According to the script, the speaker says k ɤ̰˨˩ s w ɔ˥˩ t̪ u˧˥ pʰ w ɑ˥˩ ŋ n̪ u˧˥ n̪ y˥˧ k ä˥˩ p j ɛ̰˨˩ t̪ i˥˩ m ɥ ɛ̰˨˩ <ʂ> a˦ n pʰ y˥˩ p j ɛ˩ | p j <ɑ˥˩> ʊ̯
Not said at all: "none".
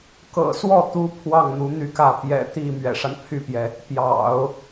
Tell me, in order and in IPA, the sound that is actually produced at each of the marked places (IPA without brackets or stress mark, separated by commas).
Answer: ʂ, ɑ̰˨˩˦